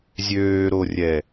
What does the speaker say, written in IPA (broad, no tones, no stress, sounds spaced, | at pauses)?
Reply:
zʲ øː ɾ o rʲ ɛ